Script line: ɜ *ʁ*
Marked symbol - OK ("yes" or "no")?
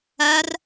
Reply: no